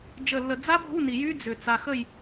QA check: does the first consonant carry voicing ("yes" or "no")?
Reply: yes